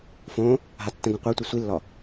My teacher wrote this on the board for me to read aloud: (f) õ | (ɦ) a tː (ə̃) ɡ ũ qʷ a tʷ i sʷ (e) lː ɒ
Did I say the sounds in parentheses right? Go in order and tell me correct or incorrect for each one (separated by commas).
correct, correct, correct, incorrect